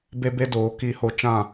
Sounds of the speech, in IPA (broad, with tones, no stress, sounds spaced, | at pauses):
b e˦ b e˦ d oː˨˦ k iː˧ h o˧ t͡ʃ ã˦˨